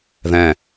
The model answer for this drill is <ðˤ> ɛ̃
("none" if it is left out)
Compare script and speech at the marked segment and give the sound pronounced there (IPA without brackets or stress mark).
ð